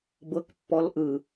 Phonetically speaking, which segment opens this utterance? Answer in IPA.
b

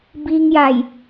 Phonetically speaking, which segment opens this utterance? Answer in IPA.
b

